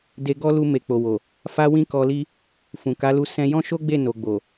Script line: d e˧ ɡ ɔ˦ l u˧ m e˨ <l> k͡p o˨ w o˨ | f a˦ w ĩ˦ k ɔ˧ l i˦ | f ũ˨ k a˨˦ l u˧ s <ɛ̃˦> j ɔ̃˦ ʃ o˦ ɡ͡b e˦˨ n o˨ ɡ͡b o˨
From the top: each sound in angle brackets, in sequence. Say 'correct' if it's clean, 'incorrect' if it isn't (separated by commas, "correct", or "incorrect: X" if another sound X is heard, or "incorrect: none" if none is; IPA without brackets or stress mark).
incorrect: none, incorrect: ɛ̃˧